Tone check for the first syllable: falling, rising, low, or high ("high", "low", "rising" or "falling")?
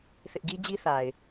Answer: high